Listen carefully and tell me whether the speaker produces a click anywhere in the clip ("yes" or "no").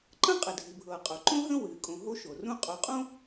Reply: yes